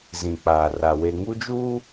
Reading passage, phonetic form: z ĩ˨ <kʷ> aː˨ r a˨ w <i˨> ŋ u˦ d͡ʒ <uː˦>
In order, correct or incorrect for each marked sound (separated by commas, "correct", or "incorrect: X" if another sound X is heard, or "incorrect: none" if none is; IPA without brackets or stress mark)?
incorrect: k͡p, incorrect: e˨, correct